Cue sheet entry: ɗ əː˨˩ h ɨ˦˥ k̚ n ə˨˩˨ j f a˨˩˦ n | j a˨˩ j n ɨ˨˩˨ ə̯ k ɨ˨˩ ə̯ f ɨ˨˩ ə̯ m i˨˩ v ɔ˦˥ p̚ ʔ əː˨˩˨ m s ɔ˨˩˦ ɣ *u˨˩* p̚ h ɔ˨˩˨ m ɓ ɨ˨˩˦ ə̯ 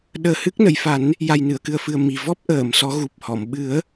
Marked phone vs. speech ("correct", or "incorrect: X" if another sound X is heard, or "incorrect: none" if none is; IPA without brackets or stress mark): correct